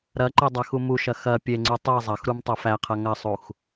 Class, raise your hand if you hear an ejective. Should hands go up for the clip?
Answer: no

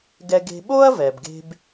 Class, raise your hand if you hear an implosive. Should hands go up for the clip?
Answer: yes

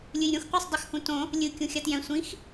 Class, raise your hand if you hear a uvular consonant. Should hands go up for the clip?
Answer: yes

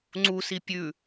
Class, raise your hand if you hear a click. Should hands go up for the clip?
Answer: yes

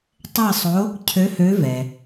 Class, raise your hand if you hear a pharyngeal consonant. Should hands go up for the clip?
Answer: no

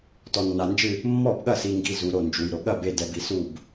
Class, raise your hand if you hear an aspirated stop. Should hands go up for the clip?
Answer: no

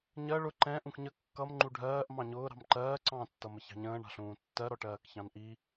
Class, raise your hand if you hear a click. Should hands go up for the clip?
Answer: yes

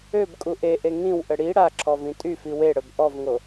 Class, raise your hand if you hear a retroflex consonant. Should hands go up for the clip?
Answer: yes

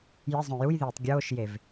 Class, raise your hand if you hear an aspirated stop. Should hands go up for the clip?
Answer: no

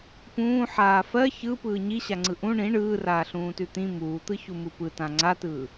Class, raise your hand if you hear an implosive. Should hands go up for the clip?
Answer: no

